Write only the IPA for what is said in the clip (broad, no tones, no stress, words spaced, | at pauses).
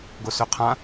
ɡosøqʰã